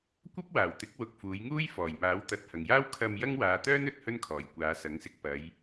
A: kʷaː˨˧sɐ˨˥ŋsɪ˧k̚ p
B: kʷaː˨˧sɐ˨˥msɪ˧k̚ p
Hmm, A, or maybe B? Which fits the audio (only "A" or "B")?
A